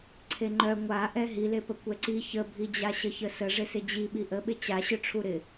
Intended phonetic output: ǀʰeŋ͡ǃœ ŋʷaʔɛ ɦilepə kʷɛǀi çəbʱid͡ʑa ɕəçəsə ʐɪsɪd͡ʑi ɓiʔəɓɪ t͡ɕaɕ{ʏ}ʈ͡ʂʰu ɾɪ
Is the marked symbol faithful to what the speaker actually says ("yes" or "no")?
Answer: yes